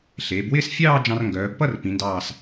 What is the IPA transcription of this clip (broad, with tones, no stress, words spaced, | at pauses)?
ɬeː˩˧bwɪː˥˧sfʲɑː˥˧ d͡ʒɑ̃˧rŋɡœː˩˧bpʌ˥˧r pĩ˩˧ndɑː˧˩s